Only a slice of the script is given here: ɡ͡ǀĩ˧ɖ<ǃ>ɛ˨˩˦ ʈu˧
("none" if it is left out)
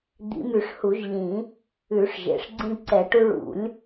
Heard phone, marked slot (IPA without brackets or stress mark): ǀ